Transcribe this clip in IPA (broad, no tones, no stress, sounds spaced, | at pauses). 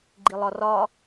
ɡ͡ǃ i lˠ ɒ r ɒ